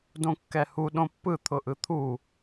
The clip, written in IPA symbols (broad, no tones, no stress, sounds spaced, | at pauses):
d õ kː ɛ h u ɗ õ pː ɯ t̪ʰ ʊ ʔ ɯ t̪ʰ u